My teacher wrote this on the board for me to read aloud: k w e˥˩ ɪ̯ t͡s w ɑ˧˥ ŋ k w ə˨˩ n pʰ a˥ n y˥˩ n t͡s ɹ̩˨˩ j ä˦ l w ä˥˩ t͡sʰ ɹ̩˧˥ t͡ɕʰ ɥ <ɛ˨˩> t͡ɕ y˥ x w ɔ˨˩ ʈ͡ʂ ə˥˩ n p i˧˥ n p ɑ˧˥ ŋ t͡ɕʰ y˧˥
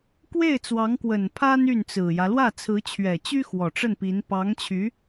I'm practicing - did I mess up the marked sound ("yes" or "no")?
no